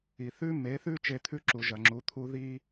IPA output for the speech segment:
i˩ θ ʉ˥ m e˩˥ θ ʉ˥ t͡ʃ e˧ t̪ʰ ʉ˥ ǁ u˩ ʒ ɐ˩ ŋ͡ǁ u˩˥ t̪ʰ u˥ ð i˥

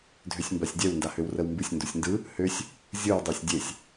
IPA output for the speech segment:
dʱ ø sʲ m b a sʲ dʲ ɛ w n d a h ø w r ə w m b ɨ sʲ n d u sʲ n d ɯ | h ø sʲ | zʲ ɯ w dˤ ø sʲ dʲ e sʲ

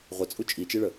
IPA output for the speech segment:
ʁʷ ə t͡sʼ u t͡ʃʼ i t͡ʃ i ɭ ə

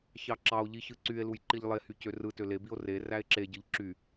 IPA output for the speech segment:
ç ɑ ǁ ɑ o̯ ʎ i ç ɯ ǀ y e̯ l u j ǃ i ʎ lˠ e h y c ø r ɯ t ø l e b i o̯ r e r æ e̯ ǁ e ɟ ɯ ʎ ǁ y

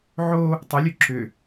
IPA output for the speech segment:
ʕ o | tˤ ʉ lʲ ʉ ǁ ʏ

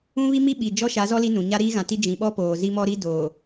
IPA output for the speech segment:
ũ˦ β i˦ m i˦ ɓ i˨ d͡ʒ ɔ˦ ʃ a˨˦ z ɔ˦ l i˦ n ũ˨ ɲ a˦ ɾ iː˦ ɣ ã˨ t i˦ d͡ʒ ĩ˨ ɓ ɔ˦ p oː˨ z i˦ m ɔ˦ ɾ i˦ d oː˨

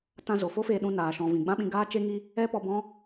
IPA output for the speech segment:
t ã˧ z o˨ f o˦ f eː˧ ɗ ũ˧ n aː˨ ʃ ɔ̃˨ v ĩ˨ ɡ͡b ã˦ ɓ ĩ˧ ɡ aː˦ t͡ʃ e˦ ŋ i˦ | ɛ˦ p ɔ˧ b ɔ̃˦

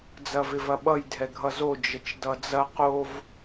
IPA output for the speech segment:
d͡z ɐ v ɪ v ɐ ɓ ʌ j dʱ ɛ ɡʱ ʌ z o d͡ʒ ə t͡ʃ d ʌ d͡z ɐ q o v

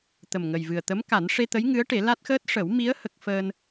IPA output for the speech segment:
t̪ ə˨˩ m ŋ ə˨˩ j v ɨ˨˩ ə̯ t̪ ə˧˥ m k a˨˩˦ n ʂ e˧ t̪ ə˧˥ j ŋ ɨ˧˥ ə̯ ʈ e˨˩˦ l a˦˥ t̚ x əː˦˥ t̚ ʂ ə˨˩˦ w m i˧˥ ə̯ h ə˦˥ k̚ f əː˧ n

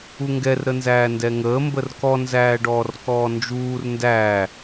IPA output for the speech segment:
u ŋ ɡ ɛ r ɾ ə n z æː n d ɛ ŋ əː m b ə r k ɔ n z æː ɖ ɔː r k ɔː n d͡ʒ uː r n d æː

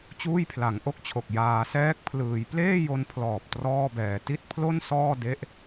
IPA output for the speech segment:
t͡ɕ uː˥˩ j pʰ l a˩˦ ŋ ʔ o˥˩ k̚ t͡ɕʰ o˨˩ k̚ j aː˩˦ s ɛː˦˥ k̚ pʰ l ɯː˩˦ j p l eː˥˩ j o˧ n pʰ l ɔː˨˩ p̚ t r ɔː˥˩ b ɛː˨˩ t i˥˩ t̚ pʰ l o˥˩ n s ɔː˥˩ d e˦˥ ʔ

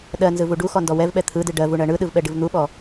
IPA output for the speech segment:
ɗ ɜ n z ɯ v u ɖ u x ɔ n d ɔ w ɛ v ɓ ɛ t̪ʰ ɯ d ɨ ɖ ɜ v u ɳ ɜ ɳ ɯ ɗ ɯ v ɓ ɛ ɖ ɨ v n̪ u ɓ ɔ

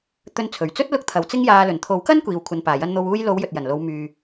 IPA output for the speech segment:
t̪ ɵ˧ n t͡sʰ ɵ˨˩ ɥ t͡s ɵ˥ t̚ l ʊ˥ k̚ t̪ʰ ɐ˨˥ w t͡s ɪ˥ ŋ j aː˧ l ɵ˨˩ n t̪ʰ o˨˥ w k ɐ˥ n kʷ iː˨ w kʷʰ ɐ˨ n p aː˨˩ j ɐ˧ n n̪ o˨ w uː˧ j l o˨˧ w j ɵ˨ t̚ j ɐ˨˩ n l o˨˧ w m yː˨

